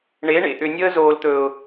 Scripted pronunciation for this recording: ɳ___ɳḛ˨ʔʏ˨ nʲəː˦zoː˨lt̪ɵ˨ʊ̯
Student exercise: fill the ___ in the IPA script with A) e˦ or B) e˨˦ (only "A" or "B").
B